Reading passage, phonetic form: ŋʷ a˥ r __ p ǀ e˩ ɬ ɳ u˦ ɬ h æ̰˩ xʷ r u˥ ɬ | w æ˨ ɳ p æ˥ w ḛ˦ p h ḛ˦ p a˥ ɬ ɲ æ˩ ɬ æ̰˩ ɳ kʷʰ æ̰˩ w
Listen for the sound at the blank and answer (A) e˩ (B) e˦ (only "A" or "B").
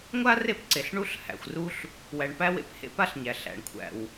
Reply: B